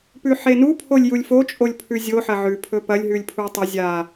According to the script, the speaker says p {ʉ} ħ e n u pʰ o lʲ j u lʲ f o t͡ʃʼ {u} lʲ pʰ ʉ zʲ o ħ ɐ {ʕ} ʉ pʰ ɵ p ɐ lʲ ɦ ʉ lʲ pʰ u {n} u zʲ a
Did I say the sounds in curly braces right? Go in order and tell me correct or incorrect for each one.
correct, incorrect, correct, incorrect

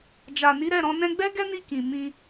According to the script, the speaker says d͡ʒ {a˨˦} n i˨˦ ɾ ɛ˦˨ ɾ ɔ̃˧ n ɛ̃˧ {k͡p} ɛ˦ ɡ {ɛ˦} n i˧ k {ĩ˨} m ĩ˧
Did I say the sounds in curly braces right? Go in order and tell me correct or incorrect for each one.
incorrect, incorrect, correct, correct

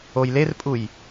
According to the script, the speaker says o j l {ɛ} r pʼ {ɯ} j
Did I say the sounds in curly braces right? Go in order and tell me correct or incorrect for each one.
incorrect, incorrect

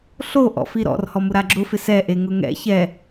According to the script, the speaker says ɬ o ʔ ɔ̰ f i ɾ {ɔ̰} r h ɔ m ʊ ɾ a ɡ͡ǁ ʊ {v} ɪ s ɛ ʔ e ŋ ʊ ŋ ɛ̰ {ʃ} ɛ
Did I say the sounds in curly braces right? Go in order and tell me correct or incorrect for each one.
correct, incorrect, incorrect

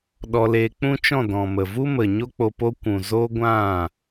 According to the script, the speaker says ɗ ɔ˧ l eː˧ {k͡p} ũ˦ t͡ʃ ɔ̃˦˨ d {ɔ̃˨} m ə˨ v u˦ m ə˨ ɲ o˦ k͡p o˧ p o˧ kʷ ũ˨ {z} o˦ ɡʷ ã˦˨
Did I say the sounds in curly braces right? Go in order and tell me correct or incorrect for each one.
correct, correct, correct

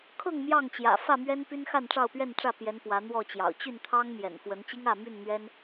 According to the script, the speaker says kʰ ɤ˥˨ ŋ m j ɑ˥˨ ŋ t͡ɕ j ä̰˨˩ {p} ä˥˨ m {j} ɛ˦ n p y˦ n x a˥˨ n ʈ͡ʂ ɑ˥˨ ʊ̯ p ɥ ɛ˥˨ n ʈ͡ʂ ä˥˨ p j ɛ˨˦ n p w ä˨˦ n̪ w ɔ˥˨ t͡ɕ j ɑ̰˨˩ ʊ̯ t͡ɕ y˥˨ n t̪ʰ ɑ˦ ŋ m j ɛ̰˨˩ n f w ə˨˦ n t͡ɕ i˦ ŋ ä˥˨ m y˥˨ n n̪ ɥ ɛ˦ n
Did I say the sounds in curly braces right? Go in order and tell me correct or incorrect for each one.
incorrect, incorrect

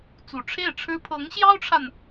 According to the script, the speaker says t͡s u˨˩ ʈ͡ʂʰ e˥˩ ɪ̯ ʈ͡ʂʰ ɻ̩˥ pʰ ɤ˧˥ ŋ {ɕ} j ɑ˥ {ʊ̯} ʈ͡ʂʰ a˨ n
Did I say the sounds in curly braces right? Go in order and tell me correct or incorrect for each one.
correct, correct

